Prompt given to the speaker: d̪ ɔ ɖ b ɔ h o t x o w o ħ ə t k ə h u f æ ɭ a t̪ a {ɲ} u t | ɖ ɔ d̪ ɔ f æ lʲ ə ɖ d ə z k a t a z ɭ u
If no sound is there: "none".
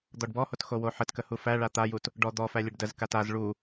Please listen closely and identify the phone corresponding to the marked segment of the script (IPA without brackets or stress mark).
j